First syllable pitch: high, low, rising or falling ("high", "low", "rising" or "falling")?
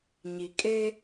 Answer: low